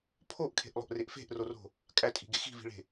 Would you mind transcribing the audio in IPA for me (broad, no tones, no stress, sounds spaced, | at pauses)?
pʰ o ʔ kʰ e̤ ʔ lˠ o̤ ʔ r e ʔ f e̤ ʔ r o r o̤ | kʼ æ tʼ i̤ ɡ e x i̤ v i̤ ɭ e̤